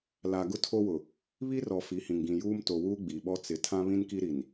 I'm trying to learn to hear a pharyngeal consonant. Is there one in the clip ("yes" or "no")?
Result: no